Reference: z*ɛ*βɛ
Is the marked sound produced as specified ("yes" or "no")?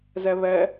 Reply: yes